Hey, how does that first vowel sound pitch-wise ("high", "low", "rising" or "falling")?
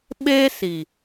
high